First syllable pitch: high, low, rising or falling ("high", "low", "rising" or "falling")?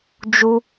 high